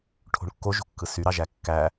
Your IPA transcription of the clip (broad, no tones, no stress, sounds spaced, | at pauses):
ʈʰ o̤ ɳ kː o ʒ o̤ kː ɯ s y ɾ ɑ ʒ æ kː æ